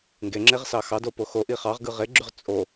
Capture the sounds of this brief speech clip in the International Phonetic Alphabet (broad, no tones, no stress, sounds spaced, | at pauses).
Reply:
ŋ ɡ e ŋ͡ǁ e ʁ s ɑ x ɑ d o p o x o ʔ i χ ɑ ʁ ɡ ɯ ʁ e ɡ͡ǁ y ʁ t͡sʼ o